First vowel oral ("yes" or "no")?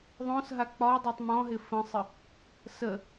no